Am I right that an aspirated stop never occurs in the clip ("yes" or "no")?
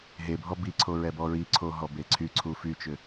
no